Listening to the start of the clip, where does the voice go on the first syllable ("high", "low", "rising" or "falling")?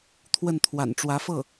falling